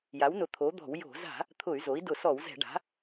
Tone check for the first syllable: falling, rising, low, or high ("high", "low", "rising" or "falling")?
rising